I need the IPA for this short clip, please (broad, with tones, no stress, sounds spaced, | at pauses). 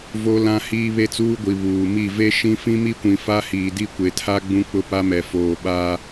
v o˦ l ã˦ h iː˦ β e˦ t͡s uː˦ ɡʷ i˨ β uː˨ m i˦˨ v e˦ ʃ ĩ˦ f ĩ˦ m i˦ kʷ ĩ˨ f a˦ h iː˨ d i˦ kʷ e˨ tʰ a˦ ɡ͡b ũ˦ k͡p ʊ˦ p a˦ m ɛ˨ f oː˨ ɓ a˦